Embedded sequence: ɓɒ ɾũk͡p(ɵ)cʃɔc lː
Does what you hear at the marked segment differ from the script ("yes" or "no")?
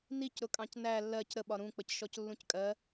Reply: yes